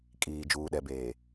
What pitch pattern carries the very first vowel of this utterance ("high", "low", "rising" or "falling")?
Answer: low